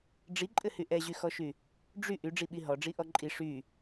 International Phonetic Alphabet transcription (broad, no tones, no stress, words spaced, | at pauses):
ɖ͡ʐiǃʼɘhy ʔɛʑyxɔʃy | ɖ͡ʐy ʔyɖ͡ʐiɓi ɦɔɖ͡ʐiʔɔ ǃʼi ʂy